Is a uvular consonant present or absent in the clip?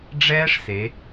absent